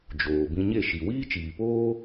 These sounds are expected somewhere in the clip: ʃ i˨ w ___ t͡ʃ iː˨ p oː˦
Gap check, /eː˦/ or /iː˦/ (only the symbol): iː˦